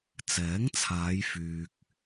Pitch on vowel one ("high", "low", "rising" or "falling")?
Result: rising